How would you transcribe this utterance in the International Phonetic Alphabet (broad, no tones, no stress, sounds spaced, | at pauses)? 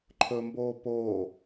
ǃʰ ɵ m b oː p oː